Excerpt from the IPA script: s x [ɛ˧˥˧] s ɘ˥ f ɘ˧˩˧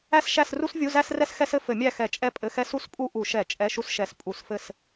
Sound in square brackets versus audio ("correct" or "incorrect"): incorrect